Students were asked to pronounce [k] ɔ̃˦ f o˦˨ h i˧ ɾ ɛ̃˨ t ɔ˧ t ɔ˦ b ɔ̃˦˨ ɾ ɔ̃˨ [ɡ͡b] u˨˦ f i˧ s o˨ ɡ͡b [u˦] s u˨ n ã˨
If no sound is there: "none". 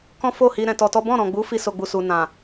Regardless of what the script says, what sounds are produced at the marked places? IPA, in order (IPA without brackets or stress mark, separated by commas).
k, ɡ͡b, u˨